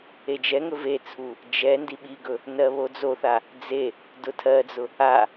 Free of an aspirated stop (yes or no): no